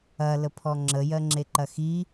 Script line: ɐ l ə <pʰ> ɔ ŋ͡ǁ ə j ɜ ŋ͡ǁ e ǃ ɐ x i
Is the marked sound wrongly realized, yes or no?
no